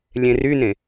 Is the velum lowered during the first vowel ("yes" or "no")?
yes